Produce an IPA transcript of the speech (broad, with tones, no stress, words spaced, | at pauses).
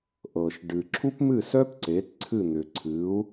ʔɤ˩ʃ ɖɨ˩ ǁʰu˥pmɨ˥˩sœ˥p ǀe˩˥t ǀʰɨ˥˩n̪ʏ˩ǀʰɨ˩˥u̯